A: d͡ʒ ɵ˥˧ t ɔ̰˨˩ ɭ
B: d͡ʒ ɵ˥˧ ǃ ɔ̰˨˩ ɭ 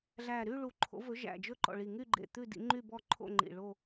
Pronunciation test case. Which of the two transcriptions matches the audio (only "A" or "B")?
B